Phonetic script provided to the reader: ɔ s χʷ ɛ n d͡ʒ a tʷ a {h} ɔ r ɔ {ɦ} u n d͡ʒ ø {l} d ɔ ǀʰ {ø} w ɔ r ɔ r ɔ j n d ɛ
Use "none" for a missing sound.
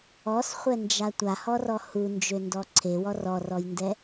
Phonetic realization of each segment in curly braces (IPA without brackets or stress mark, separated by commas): h, h, n, e